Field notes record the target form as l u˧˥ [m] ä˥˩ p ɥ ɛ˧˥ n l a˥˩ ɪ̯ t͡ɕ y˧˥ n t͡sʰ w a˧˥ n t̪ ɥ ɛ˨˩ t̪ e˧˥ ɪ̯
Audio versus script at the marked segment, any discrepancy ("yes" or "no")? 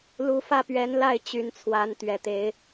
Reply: yes